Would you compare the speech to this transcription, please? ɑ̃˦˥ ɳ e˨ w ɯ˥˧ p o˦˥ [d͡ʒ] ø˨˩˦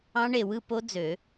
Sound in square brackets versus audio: incorrect: d͡z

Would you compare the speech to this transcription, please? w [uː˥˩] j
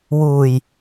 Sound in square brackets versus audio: incorrect: uː˧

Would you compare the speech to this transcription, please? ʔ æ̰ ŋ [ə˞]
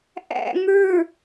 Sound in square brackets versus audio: correct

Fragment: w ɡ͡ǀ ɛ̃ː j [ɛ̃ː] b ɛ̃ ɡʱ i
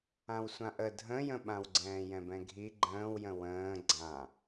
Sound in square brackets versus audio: incorrect: ɛ̃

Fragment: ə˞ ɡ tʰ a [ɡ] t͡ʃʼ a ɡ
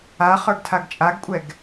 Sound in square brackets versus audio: correct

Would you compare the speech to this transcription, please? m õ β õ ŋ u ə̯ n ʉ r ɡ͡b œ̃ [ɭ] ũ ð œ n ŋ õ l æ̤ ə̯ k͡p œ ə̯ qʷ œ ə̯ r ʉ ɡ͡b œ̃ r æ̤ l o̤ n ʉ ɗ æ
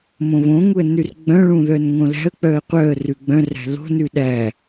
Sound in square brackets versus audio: correct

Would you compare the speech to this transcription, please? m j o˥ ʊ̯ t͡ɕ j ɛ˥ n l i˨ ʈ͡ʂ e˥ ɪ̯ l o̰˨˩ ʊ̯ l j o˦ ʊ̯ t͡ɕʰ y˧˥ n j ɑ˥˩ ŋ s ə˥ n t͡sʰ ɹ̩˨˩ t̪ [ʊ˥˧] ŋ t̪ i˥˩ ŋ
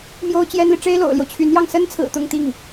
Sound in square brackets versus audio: correct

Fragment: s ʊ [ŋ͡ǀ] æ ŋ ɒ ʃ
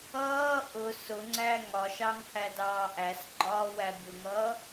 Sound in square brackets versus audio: correct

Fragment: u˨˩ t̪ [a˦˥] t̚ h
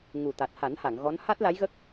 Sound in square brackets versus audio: incorrect: a˨˩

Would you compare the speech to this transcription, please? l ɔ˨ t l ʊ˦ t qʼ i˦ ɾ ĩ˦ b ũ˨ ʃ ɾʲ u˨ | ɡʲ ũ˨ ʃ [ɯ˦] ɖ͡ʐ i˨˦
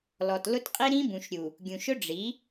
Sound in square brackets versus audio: incorrect: ʊ˦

